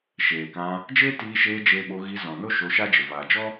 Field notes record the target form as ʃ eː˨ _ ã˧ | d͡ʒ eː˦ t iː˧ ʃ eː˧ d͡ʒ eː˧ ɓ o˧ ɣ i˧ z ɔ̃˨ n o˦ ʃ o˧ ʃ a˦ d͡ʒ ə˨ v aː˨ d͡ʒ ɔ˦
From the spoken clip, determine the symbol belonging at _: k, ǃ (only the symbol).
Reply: k